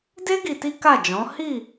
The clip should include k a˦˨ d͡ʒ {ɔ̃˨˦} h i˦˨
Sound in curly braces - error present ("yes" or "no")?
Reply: no